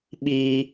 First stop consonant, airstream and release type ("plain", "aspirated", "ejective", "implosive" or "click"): implosive